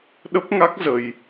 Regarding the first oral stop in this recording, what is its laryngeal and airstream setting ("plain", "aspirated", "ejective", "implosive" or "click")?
implosive